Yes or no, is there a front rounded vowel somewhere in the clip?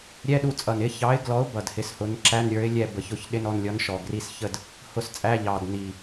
no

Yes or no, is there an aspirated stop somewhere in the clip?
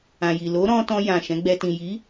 no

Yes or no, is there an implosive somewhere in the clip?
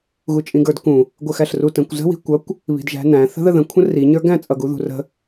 no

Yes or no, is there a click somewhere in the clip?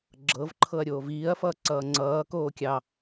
yes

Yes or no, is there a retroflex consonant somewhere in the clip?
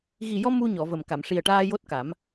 yes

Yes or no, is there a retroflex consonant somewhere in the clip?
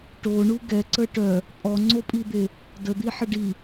yes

